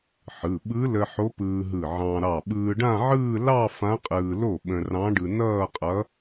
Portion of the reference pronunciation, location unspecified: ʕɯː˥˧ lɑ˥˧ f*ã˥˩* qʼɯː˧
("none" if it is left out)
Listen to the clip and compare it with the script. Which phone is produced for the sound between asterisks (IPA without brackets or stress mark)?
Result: ã˧˥